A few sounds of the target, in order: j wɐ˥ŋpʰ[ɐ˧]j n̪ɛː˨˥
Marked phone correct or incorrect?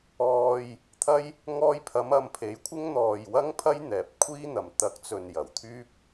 incorrect